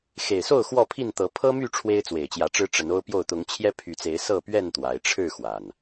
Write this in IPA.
x e˨˩ ɪ̯ s o˥˨ ʊ̯ x w ɔ˥˨ pʰ i˥˨ n t̪ ɤ˨˦ pʰ ɤ˦ m y˥˨ ʈ͡ʂʰ w e˦ ɪ̯ t͡s w e˨˩ ɪ̯ t͡ɕ j ä˨˦ ʈ͡ʂ ɻ̩˦ ʈ͡ʂ ə˨˦ n o˦ ʊ̯ p j o˥˨ ʊ̯ t̪ ʊ˨˦ ŋ t͡ɕʰ j ɛ˦ pʰ y˨˦ t͡s e˨˦ ɪ̯ s ɤ˥˨ p ɥ ɛ˥˨ n t̪ w a˨˦ ɪ̯ ʈ͡ʂʰ ɻ̩˥˨ x w a˨˩ n

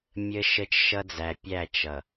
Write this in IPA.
mʲ ə˦ ʃ ə˦ t͡ʃ ʃ ʌ˦ d͡z æ˨ pʲ æ˦˨ t͡ʃ ʌ˨

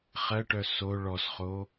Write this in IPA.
χ ɜ ʈ œ s o ɭ ɔ s χ o

